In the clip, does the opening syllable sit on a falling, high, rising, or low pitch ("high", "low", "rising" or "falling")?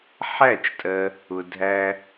falling